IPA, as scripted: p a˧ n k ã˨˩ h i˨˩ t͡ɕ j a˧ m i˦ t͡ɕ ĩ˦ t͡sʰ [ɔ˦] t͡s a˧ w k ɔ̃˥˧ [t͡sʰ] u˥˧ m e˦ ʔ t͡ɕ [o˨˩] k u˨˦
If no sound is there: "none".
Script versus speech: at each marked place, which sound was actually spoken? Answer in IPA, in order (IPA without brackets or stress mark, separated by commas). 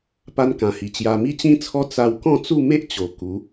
ɔ˦, t͡s, o˨˩